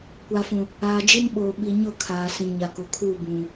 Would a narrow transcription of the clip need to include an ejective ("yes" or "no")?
no